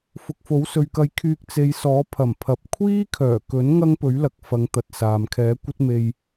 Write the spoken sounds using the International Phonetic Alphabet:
fʊ˨k̚fo˨˥wsɵ˨ɥkɐ˧j kʰyː˧k̚t͡se˨˧jsɔː˨˥ pʰɐ˨˩mpʰɐ˨p̚ kʷʰiː˥kʰœː˨˩kɵ˨˥n ŋɐ˥ŋpɵ˨˥ɥlɐ˨k̚fɐ˨˧ŋ t̪ɐ˨t̚saː˨m kʰɛː˨˥kʷɐ˥t̚ me˧j

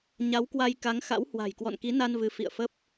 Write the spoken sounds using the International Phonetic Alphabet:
ɲa˨˦wkwa˧j ka˨˦ŋ xa̰˧˥whwa̤˨˩j kwɔ̰˧˨nki˨˦na˧n vɨ˨˦fḭ˧˨ə̯ fə˦˥p̚

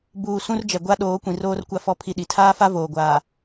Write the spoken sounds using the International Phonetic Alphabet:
buː˨ sũ˦rd͡ʒɛ˨ ɡʷa˦ ɗoː˨˦kʷĩ˨roː˦r kʷa˦fɔ˦ pʰi˦ɗi˨ tʰaː˦fa˦ voː˨ɡʷaː˨

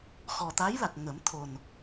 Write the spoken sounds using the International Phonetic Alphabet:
xɔ˨˩t̪a˧˥jla˨˩k̚ ŋə˨˩˦mt̪ʰo˨˩n

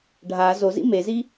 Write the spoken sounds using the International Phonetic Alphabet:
ɖʱa zozḭ mezi

